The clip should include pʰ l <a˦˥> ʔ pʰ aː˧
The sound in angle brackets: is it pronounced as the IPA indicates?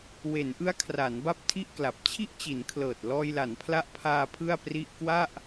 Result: yes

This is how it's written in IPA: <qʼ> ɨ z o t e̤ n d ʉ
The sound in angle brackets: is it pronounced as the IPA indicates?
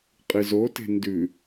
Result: yes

